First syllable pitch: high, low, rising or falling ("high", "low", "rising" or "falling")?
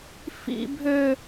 high